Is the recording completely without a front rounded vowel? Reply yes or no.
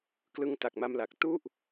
yes